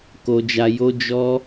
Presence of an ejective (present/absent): absent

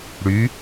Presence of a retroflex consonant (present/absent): present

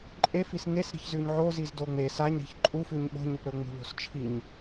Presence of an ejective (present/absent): present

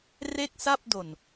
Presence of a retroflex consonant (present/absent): absent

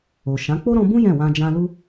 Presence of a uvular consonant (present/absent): absent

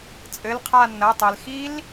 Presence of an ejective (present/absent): present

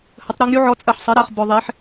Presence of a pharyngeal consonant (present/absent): present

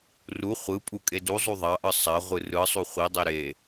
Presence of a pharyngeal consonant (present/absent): absent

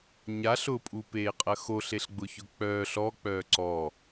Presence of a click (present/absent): present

